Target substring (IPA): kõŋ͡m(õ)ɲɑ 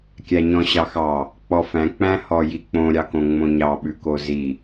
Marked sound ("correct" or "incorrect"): correct